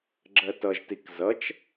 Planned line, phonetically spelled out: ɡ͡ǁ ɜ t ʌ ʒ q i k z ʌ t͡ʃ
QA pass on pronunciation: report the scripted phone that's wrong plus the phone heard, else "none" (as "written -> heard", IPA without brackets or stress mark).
q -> t